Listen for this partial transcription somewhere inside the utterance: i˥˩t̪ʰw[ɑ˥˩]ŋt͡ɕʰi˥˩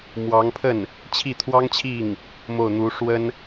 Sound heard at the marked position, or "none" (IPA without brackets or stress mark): ɑ˥